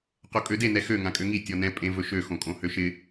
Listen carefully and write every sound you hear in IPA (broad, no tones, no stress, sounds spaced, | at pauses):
q o kʼ ø d e n ɛ x ø ŋ ã kʼ ø ŋ i tʲ ɔ n ɛ̃ pʼ ẽ v ɵ ʃ ø x õ kʼ õ h ø ʃ ɪ